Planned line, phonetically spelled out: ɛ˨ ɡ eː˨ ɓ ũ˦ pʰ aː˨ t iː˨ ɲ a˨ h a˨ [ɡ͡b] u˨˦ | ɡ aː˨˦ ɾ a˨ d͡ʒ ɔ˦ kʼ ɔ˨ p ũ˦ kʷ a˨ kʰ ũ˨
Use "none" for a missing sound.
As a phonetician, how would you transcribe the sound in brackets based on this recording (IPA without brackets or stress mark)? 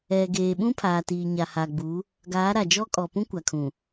ɡ͡b